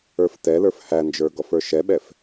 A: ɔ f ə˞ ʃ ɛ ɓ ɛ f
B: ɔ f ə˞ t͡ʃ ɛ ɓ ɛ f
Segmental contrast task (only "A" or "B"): A